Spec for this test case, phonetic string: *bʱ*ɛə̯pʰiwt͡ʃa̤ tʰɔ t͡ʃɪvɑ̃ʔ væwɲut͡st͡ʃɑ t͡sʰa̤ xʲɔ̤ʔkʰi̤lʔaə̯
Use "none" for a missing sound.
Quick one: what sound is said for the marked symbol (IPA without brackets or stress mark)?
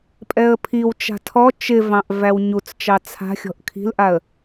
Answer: pʼ